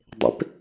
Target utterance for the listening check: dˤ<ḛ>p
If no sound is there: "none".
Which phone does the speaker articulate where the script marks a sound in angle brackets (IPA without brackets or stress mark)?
ḛ